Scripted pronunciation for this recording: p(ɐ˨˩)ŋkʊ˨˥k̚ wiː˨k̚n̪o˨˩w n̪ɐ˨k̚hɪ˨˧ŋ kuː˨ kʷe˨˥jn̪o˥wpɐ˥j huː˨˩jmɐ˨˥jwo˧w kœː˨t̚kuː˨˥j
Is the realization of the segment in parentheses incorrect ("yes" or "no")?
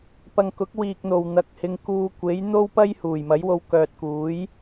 yes